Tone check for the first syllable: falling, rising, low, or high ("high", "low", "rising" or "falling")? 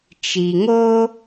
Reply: low